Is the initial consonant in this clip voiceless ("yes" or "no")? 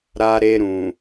no